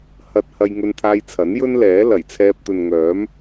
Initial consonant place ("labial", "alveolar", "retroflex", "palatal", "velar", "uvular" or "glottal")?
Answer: glottal